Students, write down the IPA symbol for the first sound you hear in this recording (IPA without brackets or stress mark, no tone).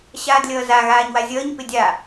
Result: ɕ